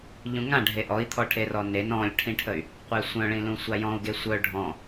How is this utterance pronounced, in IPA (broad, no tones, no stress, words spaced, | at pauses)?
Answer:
ʎũŋãɖʱe ʔɔi̯t̪ʰɔʈʰerɔ nen ɔ̃lʲʈʰĩʈʰəy̯ | qʷesʷœ̃ɭĩlũ sʷajɔ̃u̯ɡe sʷœ ɖʱɔ̃